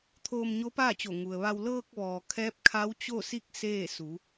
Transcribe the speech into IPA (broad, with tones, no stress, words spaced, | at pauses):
t̪ʰoː˧mɲo˧˥paː˥˨t͡ɕo˧˩ ŋu˩ə̯ʋa˧w lɤː˧k̚ʋɔː˩ kʰɛː˧˥p̚kʰa˧˥wt͡ɕo˥˨si˥˨k̚ seː˥˨su˩˧